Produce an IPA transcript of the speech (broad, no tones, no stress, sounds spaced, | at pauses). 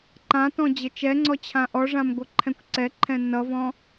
ǃ ã t ɔ̃ d͡ʑ ɘ t͡ʃ ɛ ŋ͡ǀ ɔ t͡ɕʰ ã ʔ ɔ ʐ ã m ɡʷ ʌ ǃʰ ɛ̃ kʷ ǀ ɛ ǃʰ ɛ̃ n ʌ v ɔ̃